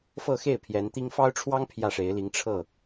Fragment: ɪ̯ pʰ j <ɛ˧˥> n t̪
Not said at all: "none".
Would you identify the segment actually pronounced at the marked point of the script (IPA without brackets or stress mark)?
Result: ɛ˧˥